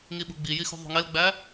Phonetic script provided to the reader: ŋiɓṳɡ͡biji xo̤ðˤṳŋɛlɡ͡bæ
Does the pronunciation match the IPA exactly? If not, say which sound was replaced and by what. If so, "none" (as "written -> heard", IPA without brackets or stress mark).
o̤ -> ṳ